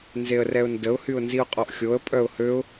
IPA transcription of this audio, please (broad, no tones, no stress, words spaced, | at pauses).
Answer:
nzeə̯rɛʊ̯ndəʊ̯ hyʊ̯nziʊ̯qʼɔʔxʲoə̯ pʼœʊ̯høʊ̯